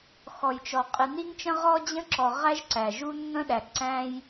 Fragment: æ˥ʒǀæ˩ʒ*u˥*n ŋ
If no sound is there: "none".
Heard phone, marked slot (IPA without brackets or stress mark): u˥